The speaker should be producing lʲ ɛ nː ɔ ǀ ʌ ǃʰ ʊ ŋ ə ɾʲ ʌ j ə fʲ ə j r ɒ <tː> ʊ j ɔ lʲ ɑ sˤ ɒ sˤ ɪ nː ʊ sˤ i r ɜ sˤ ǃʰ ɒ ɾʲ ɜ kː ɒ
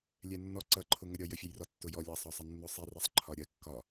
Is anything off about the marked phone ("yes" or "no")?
no